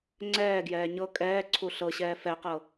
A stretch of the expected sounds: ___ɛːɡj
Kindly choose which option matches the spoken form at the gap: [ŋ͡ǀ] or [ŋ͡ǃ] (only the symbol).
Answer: ŋ͡ǀ